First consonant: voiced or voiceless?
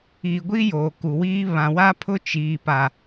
voiced